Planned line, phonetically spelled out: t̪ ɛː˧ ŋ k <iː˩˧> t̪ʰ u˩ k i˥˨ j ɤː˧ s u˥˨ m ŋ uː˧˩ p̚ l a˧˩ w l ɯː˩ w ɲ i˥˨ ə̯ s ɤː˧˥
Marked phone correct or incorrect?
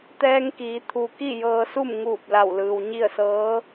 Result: correct